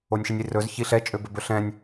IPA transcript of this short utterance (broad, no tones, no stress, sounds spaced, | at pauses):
o nʲ ʃ i nʲ i r ɵ z ç i ɬ ɛ t͡ʃʼ ø b ɵ b ɵ ɬ ɛ̃ nʲ